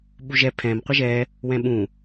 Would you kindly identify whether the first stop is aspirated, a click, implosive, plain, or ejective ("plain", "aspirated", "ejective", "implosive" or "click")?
implosive